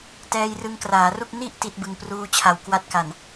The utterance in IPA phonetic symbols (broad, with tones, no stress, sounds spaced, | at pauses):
t ɛː˧ j r ɯ˧ ŋ k r aː˩˦ r u˥˩ k̚ n i˥˩ ʔ t i˦˥ t̚ b ɯ˧ ŋ p r uː˧ t͡ɕʰ a˨˩ w k w a˦˥ t̚ k a˨˩ n